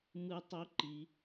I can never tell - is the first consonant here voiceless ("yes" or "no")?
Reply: no